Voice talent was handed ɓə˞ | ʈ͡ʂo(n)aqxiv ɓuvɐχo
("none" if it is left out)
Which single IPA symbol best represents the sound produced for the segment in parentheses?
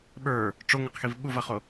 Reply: ŋ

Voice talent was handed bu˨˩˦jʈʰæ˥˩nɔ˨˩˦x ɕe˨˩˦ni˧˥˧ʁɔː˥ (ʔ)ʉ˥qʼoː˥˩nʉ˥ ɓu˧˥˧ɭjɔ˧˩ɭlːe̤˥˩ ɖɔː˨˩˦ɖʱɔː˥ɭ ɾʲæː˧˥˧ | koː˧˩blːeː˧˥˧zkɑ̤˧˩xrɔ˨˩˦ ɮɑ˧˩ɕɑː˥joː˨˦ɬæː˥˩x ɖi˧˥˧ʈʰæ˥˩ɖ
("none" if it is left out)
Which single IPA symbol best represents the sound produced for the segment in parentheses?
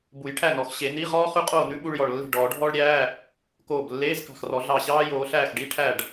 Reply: χ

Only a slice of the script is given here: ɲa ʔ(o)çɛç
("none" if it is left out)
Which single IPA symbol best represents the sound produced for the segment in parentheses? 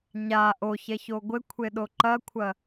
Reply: o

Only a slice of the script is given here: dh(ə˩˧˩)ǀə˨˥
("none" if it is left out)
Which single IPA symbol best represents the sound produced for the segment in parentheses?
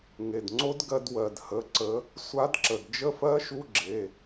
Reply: ə˩˧˩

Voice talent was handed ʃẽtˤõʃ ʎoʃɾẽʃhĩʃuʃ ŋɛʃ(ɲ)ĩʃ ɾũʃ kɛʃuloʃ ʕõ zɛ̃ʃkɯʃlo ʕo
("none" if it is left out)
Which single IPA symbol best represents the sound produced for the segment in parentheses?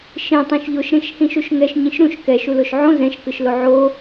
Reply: ɲ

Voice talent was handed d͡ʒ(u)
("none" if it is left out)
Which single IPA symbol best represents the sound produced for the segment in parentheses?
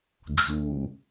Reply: u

